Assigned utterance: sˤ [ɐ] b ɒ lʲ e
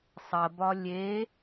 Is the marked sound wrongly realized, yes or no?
no